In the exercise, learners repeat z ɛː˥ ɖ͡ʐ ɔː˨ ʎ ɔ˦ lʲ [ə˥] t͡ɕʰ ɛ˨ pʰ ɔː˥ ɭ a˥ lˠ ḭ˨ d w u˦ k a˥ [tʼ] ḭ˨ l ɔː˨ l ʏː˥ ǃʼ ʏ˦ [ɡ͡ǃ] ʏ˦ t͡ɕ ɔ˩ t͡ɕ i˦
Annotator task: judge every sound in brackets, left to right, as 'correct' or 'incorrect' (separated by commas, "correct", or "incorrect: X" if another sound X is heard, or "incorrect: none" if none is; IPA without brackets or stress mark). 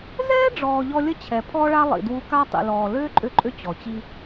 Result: correct, incorrect: tˤ, incorrect: ǃʼ